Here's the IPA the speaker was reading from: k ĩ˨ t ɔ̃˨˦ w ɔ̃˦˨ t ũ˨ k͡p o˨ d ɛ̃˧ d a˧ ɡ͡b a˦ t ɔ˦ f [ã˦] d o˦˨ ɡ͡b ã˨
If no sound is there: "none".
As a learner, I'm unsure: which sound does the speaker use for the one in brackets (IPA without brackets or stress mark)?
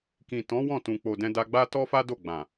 a˦